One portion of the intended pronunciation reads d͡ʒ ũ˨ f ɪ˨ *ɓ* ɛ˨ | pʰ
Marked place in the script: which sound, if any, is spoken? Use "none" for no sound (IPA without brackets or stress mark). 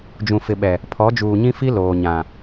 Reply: ɓ